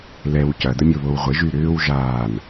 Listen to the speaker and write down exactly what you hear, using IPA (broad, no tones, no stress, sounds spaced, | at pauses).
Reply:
l ɛ w c ɐ d ə mʲ o β o w ʁʷ ɪ ʒ y ɾ ʏː w ʒ aː n